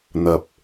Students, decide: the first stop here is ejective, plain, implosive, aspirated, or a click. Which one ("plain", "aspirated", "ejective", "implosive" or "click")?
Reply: plain